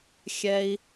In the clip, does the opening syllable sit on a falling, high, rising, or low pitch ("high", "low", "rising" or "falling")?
high